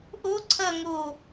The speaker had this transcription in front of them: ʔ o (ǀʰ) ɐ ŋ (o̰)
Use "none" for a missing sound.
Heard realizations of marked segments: ǀʰ, o

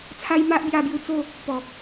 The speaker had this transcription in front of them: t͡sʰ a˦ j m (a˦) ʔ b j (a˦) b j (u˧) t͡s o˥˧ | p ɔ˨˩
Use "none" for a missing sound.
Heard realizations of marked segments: a˦, a˧, u˧

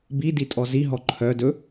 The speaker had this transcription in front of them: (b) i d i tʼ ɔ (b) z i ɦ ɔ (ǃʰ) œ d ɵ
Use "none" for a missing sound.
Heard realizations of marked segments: b, none, ǃʰ

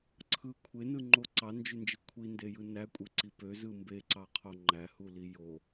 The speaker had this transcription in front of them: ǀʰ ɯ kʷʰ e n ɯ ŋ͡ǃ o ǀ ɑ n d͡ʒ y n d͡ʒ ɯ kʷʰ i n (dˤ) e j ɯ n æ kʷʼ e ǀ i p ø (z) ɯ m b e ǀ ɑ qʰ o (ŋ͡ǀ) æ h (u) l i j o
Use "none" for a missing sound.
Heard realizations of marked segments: d, z, ŋ͡ǃ, u

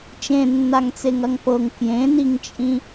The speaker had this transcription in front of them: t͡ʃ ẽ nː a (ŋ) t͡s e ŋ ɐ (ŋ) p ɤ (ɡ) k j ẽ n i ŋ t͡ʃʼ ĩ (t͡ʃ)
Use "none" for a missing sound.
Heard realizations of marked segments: ŋ, ŋ, ŋ, none

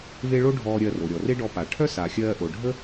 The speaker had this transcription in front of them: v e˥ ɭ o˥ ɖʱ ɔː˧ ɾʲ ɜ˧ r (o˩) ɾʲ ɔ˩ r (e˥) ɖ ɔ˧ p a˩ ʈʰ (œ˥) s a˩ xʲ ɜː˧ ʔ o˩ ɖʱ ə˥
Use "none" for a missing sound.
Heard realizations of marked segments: o˩, e˥, œ˥

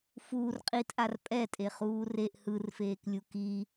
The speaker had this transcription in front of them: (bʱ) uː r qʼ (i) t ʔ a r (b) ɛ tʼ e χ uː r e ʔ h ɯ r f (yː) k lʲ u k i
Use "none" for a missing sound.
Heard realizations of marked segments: f, i, pʼ, eː

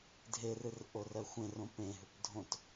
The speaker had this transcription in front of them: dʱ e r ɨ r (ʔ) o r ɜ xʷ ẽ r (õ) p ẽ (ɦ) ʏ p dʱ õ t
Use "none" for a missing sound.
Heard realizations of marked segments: ʔ, õ, ɦ

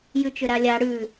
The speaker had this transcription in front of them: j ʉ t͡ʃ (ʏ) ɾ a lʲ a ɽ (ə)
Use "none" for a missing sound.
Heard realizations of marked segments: ʏ, ʉ

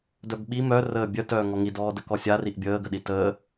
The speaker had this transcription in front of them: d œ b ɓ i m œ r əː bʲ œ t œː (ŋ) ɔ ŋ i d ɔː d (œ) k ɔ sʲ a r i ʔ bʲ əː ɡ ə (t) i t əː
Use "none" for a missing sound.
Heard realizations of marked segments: ŋ, ə, ɗ

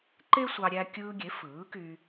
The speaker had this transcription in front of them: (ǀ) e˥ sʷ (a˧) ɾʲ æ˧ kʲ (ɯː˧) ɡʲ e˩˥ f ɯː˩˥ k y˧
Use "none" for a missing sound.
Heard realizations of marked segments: ǃ, ɑ˧, ɯː˧

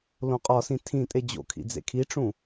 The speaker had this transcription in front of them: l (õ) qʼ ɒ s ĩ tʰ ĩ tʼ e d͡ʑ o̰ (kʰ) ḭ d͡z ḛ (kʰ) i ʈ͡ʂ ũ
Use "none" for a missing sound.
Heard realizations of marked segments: õ, kʰ, kʰ

